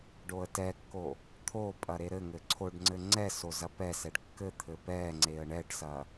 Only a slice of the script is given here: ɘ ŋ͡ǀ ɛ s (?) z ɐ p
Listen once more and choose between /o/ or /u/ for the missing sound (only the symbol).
o